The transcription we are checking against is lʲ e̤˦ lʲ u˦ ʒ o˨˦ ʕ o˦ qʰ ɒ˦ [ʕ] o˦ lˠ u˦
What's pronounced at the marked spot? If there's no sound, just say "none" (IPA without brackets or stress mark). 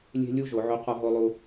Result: ɦ